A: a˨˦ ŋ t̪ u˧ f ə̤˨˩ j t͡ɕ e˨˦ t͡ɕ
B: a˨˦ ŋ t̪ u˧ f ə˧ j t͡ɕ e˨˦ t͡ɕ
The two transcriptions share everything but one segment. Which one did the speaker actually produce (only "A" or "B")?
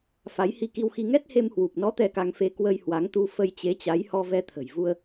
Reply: B